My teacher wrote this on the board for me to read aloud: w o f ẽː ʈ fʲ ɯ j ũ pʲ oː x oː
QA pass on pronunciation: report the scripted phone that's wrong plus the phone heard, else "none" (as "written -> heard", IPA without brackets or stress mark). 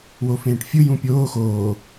none